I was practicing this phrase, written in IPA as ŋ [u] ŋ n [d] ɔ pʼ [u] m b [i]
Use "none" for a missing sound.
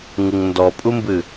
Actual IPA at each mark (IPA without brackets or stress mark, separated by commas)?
ɯ, d, u, ɨ